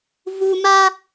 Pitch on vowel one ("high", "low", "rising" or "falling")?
low